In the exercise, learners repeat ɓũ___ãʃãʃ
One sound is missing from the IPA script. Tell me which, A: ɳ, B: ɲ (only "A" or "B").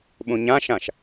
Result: B